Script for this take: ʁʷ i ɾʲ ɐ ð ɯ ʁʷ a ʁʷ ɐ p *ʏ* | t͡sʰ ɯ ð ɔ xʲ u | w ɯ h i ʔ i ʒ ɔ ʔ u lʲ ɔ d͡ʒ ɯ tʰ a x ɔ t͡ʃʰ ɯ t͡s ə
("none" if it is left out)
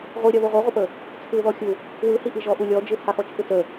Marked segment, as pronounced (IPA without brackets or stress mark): ə